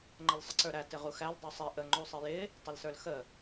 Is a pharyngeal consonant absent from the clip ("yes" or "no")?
yes